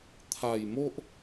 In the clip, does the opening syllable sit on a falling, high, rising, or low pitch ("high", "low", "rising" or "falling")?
low